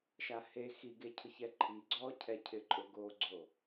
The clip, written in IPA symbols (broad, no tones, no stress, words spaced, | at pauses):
ʃahe xiɡe cʰʊçɛǃʰi ɡ͡ǀɔcʰɛcʰɪ ǃʼʊɡoɡ͡ǀo